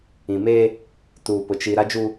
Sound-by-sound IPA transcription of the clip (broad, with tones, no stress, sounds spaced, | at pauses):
ĩ˨ m eː˦ | t uː˨ p ʊ˨ t͡ʃ i˨ ɾ a˦ d͡ʒ u˦